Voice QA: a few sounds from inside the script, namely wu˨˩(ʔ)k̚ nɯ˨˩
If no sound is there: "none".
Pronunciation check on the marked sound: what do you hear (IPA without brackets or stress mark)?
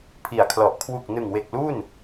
none